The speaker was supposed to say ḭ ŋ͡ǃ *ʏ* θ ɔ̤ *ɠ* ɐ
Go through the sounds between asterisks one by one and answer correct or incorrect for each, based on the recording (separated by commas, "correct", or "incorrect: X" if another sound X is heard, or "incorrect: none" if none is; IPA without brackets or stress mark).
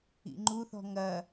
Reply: incorrect: u, incorrect: ŋ